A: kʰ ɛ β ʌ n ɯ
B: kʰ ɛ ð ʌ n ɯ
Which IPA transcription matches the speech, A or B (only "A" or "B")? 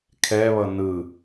A